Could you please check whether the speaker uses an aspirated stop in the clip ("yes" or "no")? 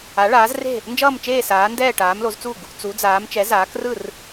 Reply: no